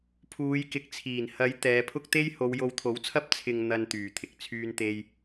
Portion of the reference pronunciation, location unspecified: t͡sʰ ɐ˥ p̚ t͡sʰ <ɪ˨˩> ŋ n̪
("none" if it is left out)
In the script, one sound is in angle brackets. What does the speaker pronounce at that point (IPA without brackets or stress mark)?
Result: ɪ˨